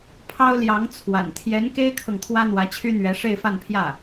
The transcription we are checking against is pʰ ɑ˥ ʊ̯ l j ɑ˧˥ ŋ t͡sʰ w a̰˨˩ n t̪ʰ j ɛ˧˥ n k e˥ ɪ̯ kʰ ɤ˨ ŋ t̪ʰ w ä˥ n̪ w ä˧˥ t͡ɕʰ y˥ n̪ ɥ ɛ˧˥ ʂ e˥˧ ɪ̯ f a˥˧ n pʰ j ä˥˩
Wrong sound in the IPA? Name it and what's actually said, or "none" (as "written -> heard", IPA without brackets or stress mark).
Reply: none